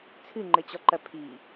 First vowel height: high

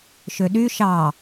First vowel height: mid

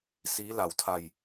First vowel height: high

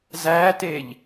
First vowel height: low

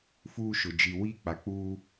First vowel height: high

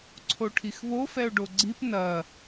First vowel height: mid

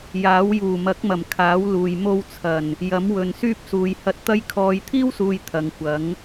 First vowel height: low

